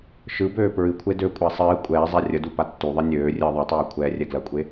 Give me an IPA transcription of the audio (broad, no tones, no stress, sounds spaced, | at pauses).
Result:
ʃ ɯ b øː p ɹ ɨ kʷʰ e d ø kʷʼ a sˤ ɨː kʷʼ ɛː zˤ ɛ rʲ ə d u p a tː u ðˤ ɨ nʲ øː rʲ ɨː ðˤ ɨ tˤ ɛː kʷʰ ɛː rʲ ɛ ɡ l ɐ kʷʼ e